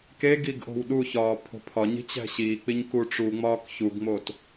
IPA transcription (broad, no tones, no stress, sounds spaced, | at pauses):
k e ɡ i ɡ ʔ o̤ w ɗ u ç ɒː pʰ o̤ pʰ ɒ ɲ i̤ t͡ɕ æ̤ ɕ iː k͡p i ɲ k u ʈ͡ʂ u ŋ͡m ɒː k ç u ɡ ŋ͡m o t